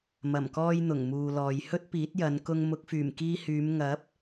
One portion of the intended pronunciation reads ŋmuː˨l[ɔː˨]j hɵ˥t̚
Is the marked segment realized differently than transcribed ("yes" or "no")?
no